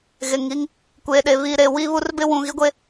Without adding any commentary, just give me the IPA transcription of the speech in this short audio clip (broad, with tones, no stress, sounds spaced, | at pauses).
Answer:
ɣ e˨ ŋ i˦ ŋ | kʷ eː˨ ɗ e˨ β i˨ ɾ e˨ w i˦ β u˦ r b ɪ˦ w ũ˨ ɣ i˦ ɡʷ e˦